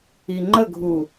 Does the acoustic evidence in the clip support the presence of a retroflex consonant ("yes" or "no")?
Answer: no